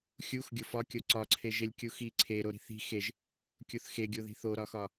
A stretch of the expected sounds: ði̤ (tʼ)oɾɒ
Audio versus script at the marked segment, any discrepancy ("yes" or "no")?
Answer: yes